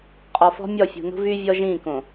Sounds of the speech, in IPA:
qʼ ɔ˨ f ɔ̤˦ mʲ ɔ˦˨ fʲ ṳ˨ n ṳ˦ v y˦ vʲ ɔ˦ ʒ ĩː˦˨ k õ˨

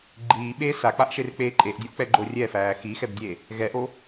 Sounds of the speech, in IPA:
ɡ͡ǃ iː ɓ eː s a k͡p a ʔ ʃ e r k͡p eː ǃʼ e ʔ dʲ o ʔ k͡p ɛ ɡ͡ǃ o rʲ ɛ f æː x i x ɛ b dʲ e | ɣ ɛ ʔ o

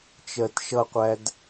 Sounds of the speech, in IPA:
t͡ʃ ɜ t ʃ ʌ qʷ æ d

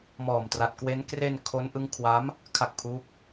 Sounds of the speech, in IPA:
m ɔː˨˩ m t r a˨˩ t̚ k w e˦˥ n k r e˧ n kʰ o˦˥ n ʔ ɯ˦˥ ŋ kʰ w a˦˥ m | kʰ a˦˥ k̚ pʰ uː˦˥ k̚

